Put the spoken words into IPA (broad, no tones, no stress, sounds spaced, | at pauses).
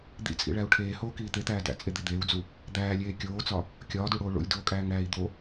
d̪ ḭ t͡sʼ ḭ ɭ æ u̯ ʈʰ eː h oː k iː t̪ e t̪ æː d æ̰ t͡sʼ e d̪ e d̪ eː u̯ d͡z u | d̪ æː lʲ eː kʲ oː t͡s ɒ | kʲ ɒː d u ɽ oː ɭ o̰ lʲ d oː kʼ æː ŋ ɽ æː i̯ d̪ o